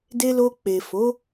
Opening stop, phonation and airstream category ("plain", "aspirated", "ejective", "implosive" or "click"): plain